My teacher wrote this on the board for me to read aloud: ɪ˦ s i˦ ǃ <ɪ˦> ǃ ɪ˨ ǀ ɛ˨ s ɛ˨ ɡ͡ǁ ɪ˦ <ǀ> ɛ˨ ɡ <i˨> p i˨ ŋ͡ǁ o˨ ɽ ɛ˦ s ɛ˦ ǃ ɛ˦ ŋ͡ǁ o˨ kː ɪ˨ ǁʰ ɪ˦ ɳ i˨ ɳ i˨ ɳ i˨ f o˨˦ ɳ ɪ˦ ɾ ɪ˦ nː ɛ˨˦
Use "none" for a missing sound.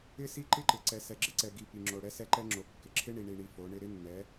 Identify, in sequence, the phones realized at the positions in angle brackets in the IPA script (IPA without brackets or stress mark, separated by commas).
ɪ˦, ǀ, i˨